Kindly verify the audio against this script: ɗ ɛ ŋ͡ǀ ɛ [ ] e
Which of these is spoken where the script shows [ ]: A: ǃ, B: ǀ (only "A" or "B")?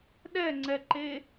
A